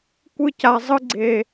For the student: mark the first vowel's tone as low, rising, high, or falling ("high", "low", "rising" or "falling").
high